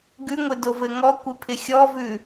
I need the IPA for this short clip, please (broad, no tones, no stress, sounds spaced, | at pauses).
ɡ ʉ ŋʷ ɪ d o v ɘ ŋ ɔ kʷ ɪ pʰ ɪ xʲ ɔ v ʉ